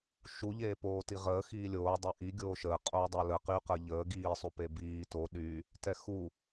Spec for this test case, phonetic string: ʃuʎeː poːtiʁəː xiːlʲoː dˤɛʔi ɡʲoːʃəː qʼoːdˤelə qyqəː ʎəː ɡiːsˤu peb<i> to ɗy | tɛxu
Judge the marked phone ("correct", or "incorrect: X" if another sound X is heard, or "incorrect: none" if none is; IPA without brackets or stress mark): incorrect: iː